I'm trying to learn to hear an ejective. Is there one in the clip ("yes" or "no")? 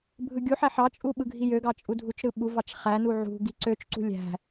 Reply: yes